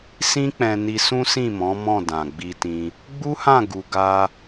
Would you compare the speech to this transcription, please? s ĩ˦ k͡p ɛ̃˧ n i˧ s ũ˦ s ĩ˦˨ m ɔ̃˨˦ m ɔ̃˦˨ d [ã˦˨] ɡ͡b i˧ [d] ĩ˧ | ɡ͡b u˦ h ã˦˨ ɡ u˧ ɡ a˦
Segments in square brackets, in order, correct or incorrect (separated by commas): incorrect, incorrect